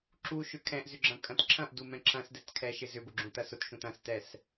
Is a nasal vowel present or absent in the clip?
present